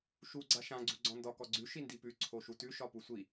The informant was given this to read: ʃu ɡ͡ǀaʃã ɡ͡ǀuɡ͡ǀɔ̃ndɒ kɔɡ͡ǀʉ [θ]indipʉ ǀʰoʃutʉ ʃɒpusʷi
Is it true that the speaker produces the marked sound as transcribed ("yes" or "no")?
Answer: no